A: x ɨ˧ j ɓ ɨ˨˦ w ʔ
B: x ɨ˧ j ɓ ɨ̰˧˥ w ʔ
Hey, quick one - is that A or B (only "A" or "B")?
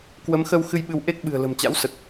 A